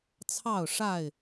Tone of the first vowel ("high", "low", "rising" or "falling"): falling